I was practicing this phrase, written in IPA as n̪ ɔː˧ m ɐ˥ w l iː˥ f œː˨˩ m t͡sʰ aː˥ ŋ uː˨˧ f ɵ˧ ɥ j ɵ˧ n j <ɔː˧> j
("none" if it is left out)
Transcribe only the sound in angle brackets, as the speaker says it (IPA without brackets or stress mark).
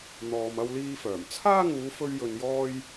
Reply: ɔː˥